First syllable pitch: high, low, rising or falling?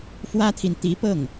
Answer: high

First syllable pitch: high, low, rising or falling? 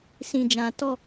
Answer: low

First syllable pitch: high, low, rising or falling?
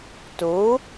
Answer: rising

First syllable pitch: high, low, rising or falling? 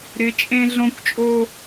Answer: rising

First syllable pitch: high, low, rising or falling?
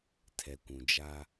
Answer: low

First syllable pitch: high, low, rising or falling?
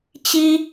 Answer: high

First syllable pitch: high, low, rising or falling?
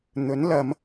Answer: rising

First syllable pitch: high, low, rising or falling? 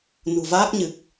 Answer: low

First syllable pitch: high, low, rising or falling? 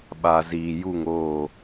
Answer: low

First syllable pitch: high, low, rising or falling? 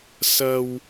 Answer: low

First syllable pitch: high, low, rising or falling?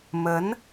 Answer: rising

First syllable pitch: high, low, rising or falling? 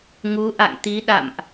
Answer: rising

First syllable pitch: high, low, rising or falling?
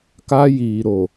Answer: high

